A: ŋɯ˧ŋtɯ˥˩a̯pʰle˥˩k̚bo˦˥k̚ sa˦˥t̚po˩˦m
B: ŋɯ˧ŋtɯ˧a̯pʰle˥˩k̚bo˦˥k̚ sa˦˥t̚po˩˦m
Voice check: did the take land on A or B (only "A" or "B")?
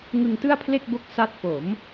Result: A